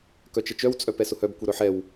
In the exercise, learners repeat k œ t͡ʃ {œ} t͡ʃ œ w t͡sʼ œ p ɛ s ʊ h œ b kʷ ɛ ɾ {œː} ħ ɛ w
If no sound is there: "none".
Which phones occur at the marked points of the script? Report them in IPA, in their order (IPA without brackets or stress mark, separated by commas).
ə, œ